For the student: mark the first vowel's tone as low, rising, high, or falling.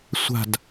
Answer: falling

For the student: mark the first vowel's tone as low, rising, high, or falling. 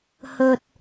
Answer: low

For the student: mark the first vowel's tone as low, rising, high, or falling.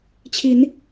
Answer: rising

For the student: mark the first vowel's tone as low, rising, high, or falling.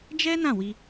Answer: high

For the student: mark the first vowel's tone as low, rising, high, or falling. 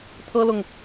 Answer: high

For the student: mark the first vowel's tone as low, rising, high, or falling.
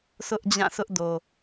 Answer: high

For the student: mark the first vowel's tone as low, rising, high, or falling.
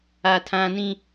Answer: high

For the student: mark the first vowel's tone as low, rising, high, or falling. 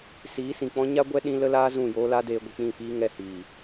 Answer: rising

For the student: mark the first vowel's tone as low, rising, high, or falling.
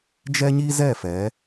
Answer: high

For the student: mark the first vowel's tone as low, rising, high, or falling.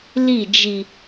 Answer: falling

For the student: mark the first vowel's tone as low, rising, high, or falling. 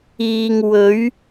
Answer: low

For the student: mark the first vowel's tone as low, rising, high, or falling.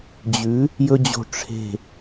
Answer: rising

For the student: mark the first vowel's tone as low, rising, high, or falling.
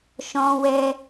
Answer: high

